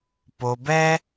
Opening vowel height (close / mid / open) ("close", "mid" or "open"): mid